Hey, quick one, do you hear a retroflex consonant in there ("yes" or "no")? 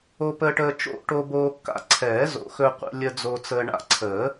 yes